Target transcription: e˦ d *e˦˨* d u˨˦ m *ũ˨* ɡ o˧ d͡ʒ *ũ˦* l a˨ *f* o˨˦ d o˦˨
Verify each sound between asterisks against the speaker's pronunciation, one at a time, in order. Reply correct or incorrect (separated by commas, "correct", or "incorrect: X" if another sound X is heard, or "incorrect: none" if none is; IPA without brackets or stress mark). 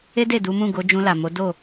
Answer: correct, incorrect: ũ˦˨, incorrect: ũ˧, incorrect: m